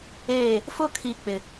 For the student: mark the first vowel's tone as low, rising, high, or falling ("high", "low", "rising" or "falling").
falling